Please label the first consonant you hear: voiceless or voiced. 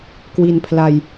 voiceless